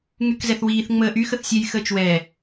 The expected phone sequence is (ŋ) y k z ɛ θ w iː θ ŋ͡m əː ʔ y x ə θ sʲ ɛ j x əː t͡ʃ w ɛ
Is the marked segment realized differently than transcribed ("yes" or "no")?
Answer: no